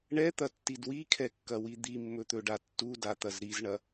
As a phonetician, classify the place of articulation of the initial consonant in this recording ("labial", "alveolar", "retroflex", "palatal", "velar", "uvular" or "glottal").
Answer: retroflex